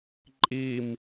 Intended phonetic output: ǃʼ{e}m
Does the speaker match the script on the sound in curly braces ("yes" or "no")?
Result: no